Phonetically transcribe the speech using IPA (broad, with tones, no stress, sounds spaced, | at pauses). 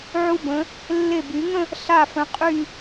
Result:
ʕ u˧ b ə̃˩˧ | lː e˧˩ b y˩˧ ŋ ə̃˥˧ | ɬ a˧˩ f ə̃˩˧ qʼ y˧˩